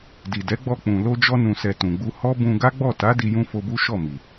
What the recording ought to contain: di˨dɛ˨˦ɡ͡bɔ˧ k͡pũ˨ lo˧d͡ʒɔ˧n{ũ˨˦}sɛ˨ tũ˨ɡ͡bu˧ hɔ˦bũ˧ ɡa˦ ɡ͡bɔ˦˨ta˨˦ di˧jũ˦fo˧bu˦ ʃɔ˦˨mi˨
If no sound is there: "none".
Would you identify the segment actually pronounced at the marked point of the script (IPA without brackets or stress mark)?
ũ˨